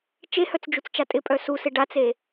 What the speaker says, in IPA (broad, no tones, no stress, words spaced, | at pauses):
t͡ʃehœt͡sd͡ʒut͡st͡ʃa tʼɪpʼœ susɪ ɖat͡se